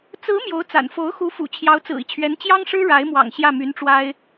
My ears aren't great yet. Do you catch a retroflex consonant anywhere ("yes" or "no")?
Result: yes